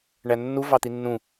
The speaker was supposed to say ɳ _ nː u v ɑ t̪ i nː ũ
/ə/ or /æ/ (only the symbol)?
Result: æ